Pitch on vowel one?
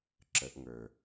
rising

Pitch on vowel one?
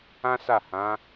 high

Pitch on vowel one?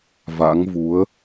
rising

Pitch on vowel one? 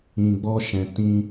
low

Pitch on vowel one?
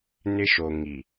high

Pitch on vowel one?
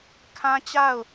high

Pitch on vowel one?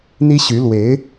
high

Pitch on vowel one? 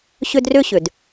high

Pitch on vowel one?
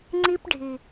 high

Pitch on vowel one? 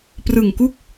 low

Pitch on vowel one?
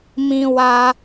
low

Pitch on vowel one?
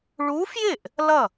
rising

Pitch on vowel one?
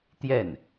falling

